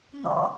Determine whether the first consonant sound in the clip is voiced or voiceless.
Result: voiced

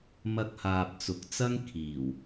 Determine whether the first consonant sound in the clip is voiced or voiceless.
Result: voiced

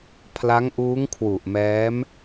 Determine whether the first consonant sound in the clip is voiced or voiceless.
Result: voiceless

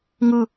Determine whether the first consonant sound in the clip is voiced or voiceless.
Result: voiced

